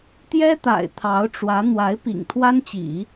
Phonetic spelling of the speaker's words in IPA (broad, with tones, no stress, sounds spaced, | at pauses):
t̪ j ɛ˥ t̪ a̰˨˩ ɪ̯ t̪ʰ ɑ˧˥ ʊ̯ ʈ͡ʂ w ä˧˥ n̪ w a˧˥ ɪ̯ p ḭ˨˩ ŋ t̪ʰ w a˥ n t͡ɕ ḭ˨˩˦